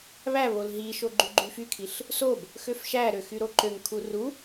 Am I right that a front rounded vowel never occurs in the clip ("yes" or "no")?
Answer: no